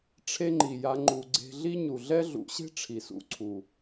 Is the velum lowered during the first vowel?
no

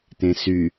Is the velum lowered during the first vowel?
yes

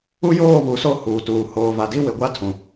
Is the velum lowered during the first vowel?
no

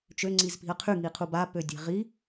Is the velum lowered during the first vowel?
no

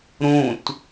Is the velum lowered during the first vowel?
yes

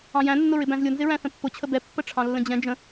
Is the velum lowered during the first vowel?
yes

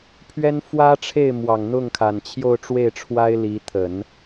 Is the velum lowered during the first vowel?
no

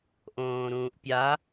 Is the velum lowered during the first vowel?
yes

